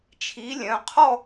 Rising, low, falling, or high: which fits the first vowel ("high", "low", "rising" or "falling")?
rising